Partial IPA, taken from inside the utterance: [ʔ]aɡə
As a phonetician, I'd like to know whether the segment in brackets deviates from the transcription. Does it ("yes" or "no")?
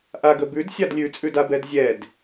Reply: no